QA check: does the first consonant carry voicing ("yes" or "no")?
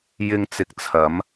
yes